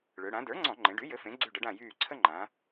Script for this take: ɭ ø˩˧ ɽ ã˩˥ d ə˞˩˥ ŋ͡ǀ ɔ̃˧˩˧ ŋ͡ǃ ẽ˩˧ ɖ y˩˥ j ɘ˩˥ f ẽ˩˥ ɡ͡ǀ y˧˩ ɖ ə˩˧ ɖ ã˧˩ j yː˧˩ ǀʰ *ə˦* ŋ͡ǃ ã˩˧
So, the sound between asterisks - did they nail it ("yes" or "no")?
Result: yes